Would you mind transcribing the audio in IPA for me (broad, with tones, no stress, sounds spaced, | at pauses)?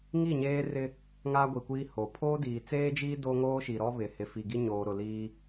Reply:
ŋ i˦˨ ɲ eː˦ r ɪ˦ | ŋ aː˦ ɡʷ i˨ kʷ iː˦ h o˨ pʰ oː˦ d iː˨ t͡s eː˦ d͡ʒ iː˦ d o˦ ŋ oː˦ ʃ i˨ ɾ ɔ˦ β ɪ˨ h ɪ˨ f i˨ ɡ i˦ ɲ oː˨ ɾ ʊ˨ l iː˦